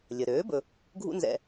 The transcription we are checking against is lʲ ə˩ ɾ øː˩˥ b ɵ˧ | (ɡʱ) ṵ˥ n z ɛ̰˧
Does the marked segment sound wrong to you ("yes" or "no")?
no